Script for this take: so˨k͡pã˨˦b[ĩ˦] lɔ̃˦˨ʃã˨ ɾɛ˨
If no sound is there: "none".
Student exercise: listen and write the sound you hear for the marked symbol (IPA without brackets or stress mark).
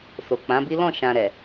i˦